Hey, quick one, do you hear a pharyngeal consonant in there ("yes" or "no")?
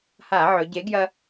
yes